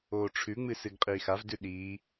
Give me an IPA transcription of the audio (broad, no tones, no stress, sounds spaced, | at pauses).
oː ʈ͡ʂʰ ʉ ŋ͡m ɨ s ɨ ɡ qʼ iː x a v d ʉ ɗ iː